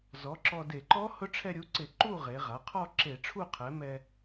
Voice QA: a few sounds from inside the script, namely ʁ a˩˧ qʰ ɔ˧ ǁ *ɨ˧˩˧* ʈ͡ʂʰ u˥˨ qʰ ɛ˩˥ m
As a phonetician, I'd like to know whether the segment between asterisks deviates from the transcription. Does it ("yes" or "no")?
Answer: yes